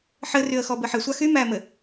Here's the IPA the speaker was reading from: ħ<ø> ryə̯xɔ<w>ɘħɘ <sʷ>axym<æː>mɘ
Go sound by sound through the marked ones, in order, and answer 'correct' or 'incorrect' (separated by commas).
incorrect, incorrect, correct, correct